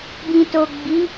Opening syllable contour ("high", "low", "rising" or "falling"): low